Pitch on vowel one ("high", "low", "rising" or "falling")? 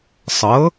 rising